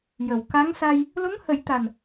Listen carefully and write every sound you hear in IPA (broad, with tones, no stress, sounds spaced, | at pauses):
j ə˨˩ w k a˧˥ ŋ s a˧ j | l o˧˥ ŋ h ə˨˩˦ j t̪ a˨˩ n